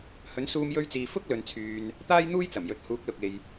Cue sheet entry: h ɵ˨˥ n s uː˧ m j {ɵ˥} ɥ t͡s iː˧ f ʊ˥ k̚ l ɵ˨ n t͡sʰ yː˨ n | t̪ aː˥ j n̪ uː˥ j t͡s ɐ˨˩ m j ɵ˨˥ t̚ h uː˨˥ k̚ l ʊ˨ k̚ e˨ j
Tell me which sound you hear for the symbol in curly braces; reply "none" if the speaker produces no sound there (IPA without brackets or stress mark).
ɵ˥